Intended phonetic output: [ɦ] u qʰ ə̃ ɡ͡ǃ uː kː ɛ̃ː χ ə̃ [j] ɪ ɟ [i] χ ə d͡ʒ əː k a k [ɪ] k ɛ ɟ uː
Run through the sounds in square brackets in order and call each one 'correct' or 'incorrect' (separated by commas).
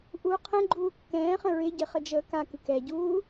incorrect, incorrect, incorrect, incorrect